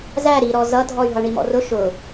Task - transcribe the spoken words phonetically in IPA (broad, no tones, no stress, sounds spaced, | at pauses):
z æ ɾ i ɾ ɔ z ʌ dʱ ɔ y̯ ɦ ʌ ɳ i m ɔ̰ r ʊ ʃ ʊ